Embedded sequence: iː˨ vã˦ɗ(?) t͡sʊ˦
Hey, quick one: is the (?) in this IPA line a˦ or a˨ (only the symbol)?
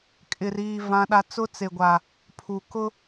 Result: a˦